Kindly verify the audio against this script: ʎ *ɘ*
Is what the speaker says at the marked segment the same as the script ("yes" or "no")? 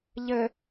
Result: yes